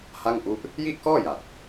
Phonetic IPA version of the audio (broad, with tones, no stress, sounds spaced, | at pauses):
h a˥˩ ŋ ʔ u˦˥ ʔ | j i˥˩ ʔ k ɔː˥˩ j a˨˩ t̚